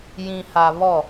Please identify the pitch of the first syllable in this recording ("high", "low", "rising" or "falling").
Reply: low